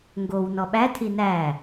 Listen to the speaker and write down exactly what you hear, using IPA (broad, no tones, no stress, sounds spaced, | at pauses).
ŋ ɡ o w n ɔ ɓ æ tʰ i n æ